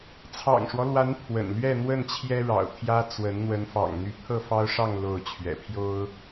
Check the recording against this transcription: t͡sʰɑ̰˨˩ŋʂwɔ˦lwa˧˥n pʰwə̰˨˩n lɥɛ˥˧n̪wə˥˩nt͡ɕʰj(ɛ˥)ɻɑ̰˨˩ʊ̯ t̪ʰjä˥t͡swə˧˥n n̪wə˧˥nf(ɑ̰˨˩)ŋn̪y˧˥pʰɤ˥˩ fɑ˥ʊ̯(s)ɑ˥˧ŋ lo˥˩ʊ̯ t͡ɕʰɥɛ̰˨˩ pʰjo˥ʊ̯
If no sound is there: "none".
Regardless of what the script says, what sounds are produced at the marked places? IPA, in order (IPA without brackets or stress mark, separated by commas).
ɛ˥, ɑ̰˨˩, ʂ